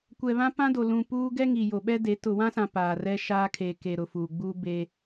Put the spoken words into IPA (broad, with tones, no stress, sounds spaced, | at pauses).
kʷ ɛ˨ β ã˦ p ã˦ d o˨ l ũ˨ p uː˦ ɡ ɛ˦ ŋ i˨ j o˨ ɓ ɛ˦ d e˨˦ t ʊ˨ w ã˦ s ã˨ p aː˨ r ɛ˦ ʃ aː˦ kʰ e˨ k e˨ ɾ ʊ˨ f uː˨ ɡ͡b uː˦ b e˦